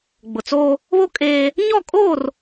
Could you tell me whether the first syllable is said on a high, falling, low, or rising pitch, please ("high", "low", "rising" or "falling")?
low